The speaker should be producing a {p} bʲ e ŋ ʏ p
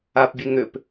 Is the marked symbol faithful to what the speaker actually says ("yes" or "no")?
yes